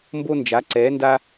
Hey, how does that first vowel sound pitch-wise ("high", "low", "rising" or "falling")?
high